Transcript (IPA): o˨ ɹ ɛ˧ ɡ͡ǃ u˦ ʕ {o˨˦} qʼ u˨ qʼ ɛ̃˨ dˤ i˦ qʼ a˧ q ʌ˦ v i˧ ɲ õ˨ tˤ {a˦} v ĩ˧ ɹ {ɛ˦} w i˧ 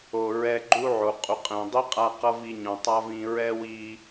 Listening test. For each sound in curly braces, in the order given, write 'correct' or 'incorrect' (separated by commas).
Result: incorrect, correct, correct